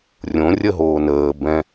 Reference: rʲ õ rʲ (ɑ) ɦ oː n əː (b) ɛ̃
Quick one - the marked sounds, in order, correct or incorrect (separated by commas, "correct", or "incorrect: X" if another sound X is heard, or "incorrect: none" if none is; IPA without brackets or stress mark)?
incorrect: ə, correct